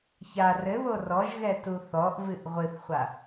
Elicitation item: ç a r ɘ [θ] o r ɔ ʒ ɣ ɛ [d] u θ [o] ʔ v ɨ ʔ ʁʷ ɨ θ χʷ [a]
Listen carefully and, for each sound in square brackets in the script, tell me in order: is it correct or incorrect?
incorrect: β, incorrect: t, incorrect: ɔ, correct

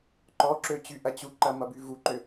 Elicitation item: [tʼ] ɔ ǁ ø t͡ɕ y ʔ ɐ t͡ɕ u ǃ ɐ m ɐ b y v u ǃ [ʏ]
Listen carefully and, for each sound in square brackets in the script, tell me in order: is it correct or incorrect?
incorrect: ǃ, correct

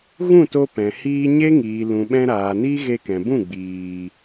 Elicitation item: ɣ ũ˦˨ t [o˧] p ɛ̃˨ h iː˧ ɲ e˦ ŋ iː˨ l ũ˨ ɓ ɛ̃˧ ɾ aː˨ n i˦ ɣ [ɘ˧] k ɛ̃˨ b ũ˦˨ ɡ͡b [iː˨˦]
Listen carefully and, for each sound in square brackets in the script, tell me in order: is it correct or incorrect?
correct, incorrect: e˧, incorrect: iː˨

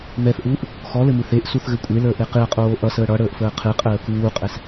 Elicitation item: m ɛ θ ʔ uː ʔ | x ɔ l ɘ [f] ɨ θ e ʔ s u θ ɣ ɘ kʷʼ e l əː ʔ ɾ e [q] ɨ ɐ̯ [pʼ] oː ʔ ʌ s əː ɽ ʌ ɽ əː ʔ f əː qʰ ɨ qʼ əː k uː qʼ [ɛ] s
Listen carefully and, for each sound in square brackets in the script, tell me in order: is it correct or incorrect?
incorrect: m, correct, incorrect: qʼ, correct

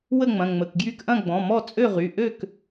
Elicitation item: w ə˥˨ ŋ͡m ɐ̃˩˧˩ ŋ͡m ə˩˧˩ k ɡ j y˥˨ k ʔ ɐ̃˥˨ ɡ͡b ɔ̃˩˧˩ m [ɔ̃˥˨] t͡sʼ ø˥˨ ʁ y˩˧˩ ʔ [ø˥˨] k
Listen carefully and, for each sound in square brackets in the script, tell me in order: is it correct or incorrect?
incorrect: ɔ˥˨, correct

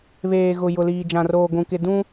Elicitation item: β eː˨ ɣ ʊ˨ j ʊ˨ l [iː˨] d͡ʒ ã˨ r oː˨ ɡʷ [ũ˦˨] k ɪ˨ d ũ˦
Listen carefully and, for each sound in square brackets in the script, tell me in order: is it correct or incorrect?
correct, incorrect: ũ˨

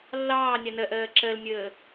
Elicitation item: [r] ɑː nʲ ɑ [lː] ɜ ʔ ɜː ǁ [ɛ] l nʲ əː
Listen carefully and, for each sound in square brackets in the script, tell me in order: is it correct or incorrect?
incorrect: lː, incorrect: n, incorrect: ɜ

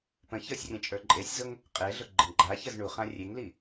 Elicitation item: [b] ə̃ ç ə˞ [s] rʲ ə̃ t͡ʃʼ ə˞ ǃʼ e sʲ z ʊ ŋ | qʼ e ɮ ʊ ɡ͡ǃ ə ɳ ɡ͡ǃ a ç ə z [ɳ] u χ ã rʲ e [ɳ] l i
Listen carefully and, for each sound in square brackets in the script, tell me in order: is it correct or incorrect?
incorrect: p, incorrect: sʲ, correct, incorrect: ŋ

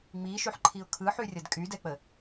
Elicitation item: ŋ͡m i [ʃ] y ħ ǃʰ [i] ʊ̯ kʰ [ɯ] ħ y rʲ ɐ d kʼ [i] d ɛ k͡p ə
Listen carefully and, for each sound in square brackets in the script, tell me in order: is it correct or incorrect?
correct, correct, correct, incorrect: y

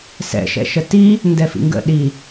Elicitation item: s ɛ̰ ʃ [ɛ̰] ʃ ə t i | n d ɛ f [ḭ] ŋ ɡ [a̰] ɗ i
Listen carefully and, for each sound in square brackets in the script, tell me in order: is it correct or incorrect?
correct, correct, incorrect: ə̰

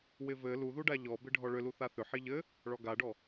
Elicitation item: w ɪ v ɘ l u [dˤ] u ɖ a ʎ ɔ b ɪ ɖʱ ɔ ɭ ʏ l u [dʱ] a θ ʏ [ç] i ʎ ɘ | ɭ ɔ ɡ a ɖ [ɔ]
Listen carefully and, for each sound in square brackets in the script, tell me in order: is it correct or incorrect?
incorrect: ð, incorrect: θ, incorrect: ħ, correct

